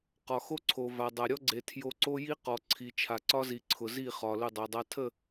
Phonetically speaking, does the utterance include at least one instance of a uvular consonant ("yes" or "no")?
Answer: yes